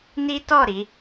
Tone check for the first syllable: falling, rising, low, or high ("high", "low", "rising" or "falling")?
high